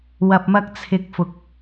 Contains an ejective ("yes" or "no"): no